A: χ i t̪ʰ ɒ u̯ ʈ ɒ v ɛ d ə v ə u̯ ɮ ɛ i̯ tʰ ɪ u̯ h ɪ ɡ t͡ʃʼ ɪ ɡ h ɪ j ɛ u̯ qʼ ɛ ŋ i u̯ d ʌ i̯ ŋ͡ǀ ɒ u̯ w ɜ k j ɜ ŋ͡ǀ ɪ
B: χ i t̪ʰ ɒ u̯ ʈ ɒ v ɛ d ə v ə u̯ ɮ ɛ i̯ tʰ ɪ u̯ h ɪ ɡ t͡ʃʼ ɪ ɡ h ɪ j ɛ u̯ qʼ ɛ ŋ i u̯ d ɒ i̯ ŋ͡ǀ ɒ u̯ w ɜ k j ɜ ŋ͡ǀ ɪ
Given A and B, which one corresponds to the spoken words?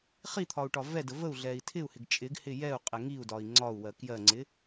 B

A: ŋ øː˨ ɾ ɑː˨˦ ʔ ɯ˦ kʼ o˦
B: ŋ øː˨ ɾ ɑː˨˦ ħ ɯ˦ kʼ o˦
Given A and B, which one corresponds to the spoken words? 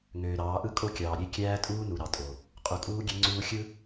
A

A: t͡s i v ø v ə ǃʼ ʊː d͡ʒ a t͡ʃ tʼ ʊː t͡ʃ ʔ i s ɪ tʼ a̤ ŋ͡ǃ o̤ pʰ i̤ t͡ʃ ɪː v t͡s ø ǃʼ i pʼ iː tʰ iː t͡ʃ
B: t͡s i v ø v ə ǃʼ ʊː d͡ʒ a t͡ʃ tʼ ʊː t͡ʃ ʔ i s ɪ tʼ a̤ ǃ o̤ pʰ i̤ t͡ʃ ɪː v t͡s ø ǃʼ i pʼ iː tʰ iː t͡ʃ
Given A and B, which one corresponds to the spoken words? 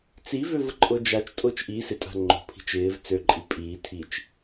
A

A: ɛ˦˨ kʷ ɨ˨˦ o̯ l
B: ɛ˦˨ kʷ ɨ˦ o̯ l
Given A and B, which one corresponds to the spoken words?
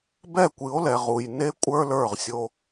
A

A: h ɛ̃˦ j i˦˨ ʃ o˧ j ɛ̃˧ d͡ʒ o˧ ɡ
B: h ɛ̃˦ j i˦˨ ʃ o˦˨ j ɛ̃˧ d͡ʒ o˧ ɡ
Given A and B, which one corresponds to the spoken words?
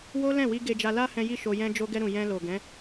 A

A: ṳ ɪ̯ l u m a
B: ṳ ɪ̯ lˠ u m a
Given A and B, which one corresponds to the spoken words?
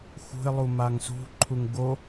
B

